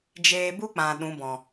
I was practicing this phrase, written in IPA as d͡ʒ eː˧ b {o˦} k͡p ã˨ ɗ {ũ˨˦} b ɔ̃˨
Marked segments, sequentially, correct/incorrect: incorrect, correct

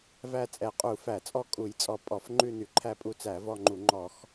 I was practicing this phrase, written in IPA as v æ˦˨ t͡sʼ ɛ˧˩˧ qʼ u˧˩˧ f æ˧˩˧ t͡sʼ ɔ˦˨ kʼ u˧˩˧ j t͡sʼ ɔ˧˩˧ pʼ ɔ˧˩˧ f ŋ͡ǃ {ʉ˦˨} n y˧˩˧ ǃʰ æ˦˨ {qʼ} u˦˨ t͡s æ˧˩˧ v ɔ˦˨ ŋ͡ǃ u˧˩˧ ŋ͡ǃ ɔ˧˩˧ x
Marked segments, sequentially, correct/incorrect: correct, incorrect

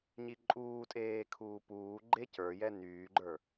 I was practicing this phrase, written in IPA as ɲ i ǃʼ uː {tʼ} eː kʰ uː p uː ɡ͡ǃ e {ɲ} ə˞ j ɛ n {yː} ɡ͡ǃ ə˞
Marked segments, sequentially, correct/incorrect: correct, incorrect, correct

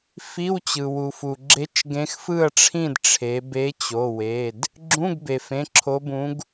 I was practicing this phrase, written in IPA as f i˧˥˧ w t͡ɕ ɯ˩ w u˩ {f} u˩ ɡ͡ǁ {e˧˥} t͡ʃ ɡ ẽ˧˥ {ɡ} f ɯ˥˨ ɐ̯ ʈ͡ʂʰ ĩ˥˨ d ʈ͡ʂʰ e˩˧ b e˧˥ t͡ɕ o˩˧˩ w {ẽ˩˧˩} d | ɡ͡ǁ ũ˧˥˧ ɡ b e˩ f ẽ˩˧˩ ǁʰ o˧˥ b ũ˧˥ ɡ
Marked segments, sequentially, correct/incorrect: correct, correct, incorrect, incorrect

